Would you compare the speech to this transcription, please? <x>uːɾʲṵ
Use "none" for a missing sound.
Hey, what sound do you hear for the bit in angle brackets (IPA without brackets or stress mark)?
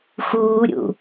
x